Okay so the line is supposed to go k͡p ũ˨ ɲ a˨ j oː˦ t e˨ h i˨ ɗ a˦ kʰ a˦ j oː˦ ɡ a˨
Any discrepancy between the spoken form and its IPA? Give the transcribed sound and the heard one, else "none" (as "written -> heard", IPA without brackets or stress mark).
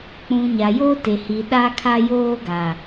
none